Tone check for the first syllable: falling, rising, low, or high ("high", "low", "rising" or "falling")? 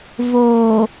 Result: low